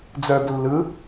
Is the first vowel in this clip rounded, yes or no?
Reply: yes